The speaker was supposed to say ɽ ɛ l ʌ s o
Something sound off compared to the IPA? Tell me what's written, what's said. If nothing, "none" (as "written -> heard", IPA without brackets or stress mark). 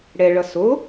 l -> ɭ